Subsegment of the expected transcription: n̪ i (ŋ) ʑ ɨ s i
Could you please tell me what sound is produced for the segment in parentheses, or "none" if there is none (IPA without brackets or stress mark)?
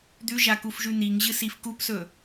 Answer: ŋ